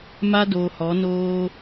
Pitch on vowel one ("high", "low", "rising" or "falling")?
high